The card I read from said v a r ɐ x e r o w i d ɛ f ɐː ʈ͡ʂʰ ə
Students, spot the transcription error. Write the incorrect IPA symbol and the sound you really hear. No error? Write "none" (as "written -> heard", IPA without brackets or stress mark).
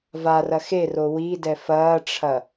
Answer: ə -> ɐ